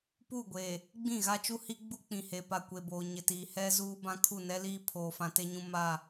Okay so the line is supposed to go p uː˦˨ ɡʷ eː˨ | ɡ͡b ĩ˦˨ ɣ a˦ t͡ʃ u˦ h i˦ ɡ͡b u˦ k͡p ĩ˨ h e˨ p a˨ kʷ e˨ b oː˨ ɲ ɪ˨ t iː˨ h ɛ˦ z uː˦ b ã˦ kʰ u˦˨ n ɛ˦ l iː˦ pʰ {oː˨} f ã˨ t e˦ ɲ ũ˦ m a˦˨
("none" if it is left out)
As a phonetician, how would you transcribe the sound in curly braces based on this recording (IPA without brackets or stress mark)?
oː˨